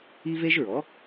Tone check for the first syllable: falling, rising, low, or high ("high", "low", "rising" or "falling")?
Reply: high